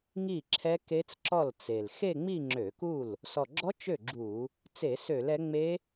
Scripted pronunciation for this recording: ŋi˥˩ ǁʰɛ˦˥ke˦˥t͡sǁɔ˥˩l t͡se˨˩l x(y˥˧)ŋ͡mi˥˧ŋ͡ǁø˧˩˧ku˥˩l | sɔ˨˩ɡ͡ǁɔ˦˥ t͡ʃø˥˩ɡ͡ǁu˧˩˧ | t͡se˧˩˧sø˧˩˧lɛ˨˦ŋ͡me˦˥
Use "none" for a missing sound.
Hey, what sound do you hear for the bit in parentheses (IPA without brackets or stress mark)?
e˥˧